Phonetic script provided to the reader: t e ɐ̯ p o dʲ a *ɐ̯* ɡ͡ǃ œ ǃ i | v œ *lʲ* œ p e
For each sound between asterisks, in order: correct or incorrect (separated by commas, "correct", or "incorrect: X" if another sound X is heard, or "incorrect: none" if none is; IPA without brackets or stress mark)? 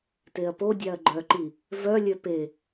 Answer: correct, correct